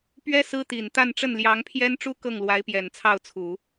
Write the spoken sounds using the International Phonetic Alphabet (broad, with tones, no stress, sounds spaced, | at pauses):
p ɥ ɛ˥ s ɹ̩˥ t̪ i˨˩ n t̪ a˥˧ n ʈ͡ʂ ə˥˩ n l j ɑ˧˥ ŋ pʰ j ɛ˥ n ʈ͡ʂ u˥ k ɤ˥˩ ŋ l w a˧˥ ɪ̯ p j ɛ˨˩ n t͡sʰ ɑ˥˩ ʊ̯ t͡sʰ u˨˩˦